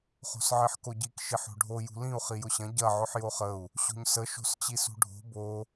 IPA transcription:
χ o̤ s ʕ i ħ k o ɟ i k ʃ i ħ o̤ ɖʱ o j ṳ l ĩ u̯ χ i j ʊ ɕ ɐ̃ ɟ ɐ ʕ ʊ ħ j o χ ə u̯ | ɕ o̤ ɲ s ə ʃ o̤ s t͡ɕ i s ṳ ɖʱ o̤ b o

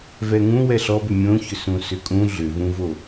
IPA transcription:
v ɛ ŋ ũ w ɛ ɬ ɔ b ʏ mʲ õ ç ʏ s ũ s ʏ kʼ ũ ɮ ʏ v ũ v o

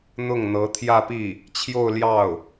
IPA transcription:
n̪ ʊ˥˩ ŋ n̪ ɤ˧˥ t̪ʰ j ä˥˧ p i˥˩ | t͡ɕʰ j o˥˧ ʊ̯ l j ɑ˥˩ ʊ̯

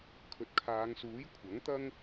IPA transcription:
kʰ ɵ˨ t̚ kʰ aː˨˧ ŋ s uː˨˥ j kʷʰ ɐ˨˥ ŋ t̪ ɐ˥ ŋ

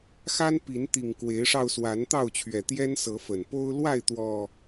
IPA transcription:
x a˦ n p i˨˦ n t̪ i˨˩ ŋ k w e˨˦ ɪ̯ ʂ ɑ˧ ʊ̯ s w a˨˦ n t̪ ɑ˥˨ ʊ̯ t͡ɕʰ ɥ ɛ˨˩ t̪ j ɛ˦ n s ɤ˨˦ f ə˨˩ n p o˦ ʊ̯ l w a˥˨ ɪ̯ t̪ w ɔ˨˩

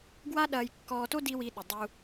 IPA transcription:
ɡ w a˦ ɗ ɐː˧ j kː ɔː˧ t o˦ d i˦ w i˧ ɗ ʊ˨ dˤ u˧

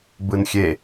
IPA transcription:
b ɯ n xʲ e

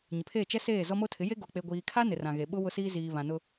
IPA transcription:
ɲ ɪ˨ pʰ eː˦˨ t͡ʃ ɛ˦ s eː˦˨ z ɔ˦ m o˦ tʰ ɪ˨˦ j e˦ ɡ o˨ k͡p e˨ ɡʷ iː˨ kʰ a˦ n ɪ˨ r ã˨ ɣ e˨ ɓ ʊ˦ w ʊ˦ s iː˦ z iː˨ β ã˨ n ʊ˦

